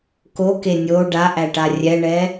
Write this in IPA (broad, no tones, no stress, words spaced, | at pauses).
koke nʲo ɖaʔæʈa rʲɛɳɛ